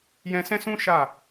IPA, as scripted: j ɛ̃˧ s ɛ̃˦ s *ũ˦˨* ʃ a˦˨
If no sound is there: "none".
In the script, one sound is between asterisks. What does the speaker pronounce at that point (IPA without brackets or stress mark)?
ũ˦